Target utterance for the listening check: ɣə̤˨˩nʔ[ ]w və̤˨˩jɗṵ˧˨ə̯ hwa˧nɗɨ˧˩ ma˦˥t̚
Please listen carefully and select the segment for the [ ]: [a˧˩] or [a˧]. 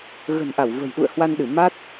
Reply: a˧˩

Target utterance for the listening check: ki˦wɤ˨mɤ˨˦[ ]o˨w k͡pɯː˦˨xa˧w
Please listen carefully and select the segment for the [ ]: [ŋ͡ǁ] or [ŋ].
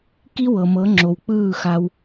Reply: ŋ͡ǁ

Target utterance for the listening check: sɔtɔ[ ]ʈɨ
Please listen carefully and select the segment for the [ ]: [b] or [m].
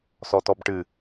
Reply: b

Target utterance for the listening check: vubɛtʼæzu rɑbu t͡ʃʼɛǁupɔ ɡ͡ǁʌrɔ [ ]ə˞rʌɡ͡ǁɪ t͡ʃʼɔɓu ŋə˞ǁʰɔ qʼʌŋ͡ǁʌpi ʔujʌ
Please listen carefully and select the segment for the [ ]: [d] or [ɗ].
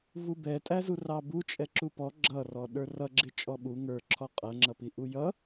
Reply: ɗ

